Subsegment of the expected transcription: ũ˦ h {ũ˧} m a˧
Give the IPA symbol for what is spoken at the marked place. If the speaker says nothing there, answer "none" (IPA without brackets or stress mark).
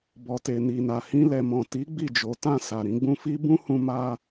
ũ˧